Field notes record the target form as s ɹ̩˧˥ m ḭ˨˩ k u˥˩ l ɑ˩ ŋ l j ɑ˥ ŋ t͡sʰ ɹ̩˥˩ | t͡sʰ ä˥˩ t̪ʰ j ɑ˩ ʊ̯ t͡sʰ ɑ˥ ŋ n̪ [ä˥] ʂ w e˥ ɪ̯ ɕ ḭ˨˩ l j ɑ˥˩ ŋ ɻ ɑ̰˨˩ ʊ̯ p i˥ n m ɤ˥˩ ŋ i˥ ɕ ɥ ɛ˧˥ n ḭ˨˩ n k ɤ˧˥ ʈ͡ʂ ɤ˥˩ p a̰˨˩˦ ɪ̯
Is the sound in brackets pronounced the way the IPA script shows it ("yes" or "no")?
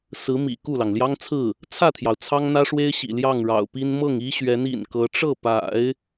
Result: yes